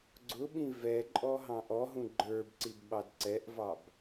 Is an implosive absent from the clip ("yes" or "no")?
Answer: no